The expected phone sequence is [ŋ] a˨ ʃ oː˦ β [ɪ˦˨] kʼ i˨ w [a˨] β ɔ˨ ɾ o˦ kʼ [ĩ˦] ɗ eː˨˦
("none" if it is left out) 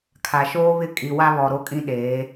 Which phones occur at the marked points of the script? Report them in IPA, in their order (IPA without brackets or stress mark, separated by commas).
kʰ, ɪ˦˨, a˦, ĩ˦